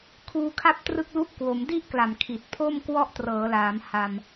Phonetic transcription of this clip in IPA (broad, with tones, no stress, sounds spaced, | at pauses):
kʰ uː˧ kʰ a˥˩ p̚ t r ɯ˥˩ k̚ l u˥˩ ʔ k w o˩˦ m d i˥˩ ʔ k l a˨˩ m kʰ i˨˩ t̚ pʰ o˥˩ m k w ɔ˥˩ ʔ t r ɤː˩˦ l aː˩˦ m h a˧ m